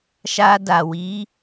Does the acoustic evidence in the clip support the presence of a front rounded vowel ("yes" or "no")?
no